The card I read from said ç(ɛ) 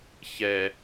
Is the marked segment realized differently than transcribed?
no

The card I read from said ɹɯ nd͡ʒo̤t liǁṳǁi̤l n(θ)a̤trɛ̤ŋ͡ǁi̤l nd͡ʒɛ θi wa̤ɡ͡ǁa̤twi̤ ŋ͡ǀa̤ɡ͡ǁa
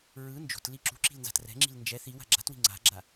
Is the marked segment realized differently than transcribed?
yes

